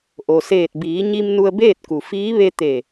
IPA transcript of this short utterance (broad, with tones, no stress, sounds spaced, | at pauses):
ʔ o˩ s eː˧˩ t̚ b iː˩˧ ɲ i˧ m n u˧ ə̯ b eː˥˨ t̚ k u˩ f iː˧˥ ʋ e˧ t̪ e˧˩